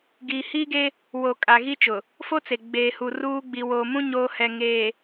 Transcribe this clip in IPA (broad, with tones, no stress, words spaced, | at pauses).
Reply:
ɡiː˨ hiː˦ɡe˦ | wo˨ kʼa˨ɣi˦t͡ʃʊ˨ | fo˦t͡se˨ ɡ͡beː˨hu˨ ruː˦ ɡ͡bi˨woː˨mũ˦ ɲoː˦ hɛ˨ŋeː˨